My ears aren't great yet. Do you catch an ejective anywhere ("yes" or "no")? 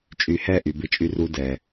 yes